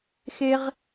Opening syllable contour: high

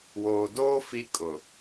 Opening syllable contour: low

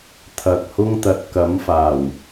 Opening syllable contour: low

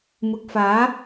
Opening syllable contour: rising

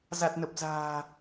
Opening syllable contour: low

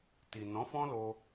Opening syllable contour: low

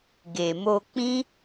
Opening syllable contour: low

